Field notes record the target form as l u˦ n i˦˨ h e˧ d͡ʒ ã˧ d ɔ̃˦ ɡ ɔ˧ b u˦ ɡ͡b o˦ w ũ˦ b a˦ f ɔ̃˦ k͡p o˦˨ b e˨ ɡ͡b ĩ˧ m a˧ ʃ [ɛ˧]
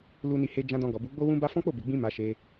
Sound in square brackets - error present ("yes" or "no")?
yes